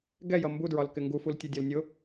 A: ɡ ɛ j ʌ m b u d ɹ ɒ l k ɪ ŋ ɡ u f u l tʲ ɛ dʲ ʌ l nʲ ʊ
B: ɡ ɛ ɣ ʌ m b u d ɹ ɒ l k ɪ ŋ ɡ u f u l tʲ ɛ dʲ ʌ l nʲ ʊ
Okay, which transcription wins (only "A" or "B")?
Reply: A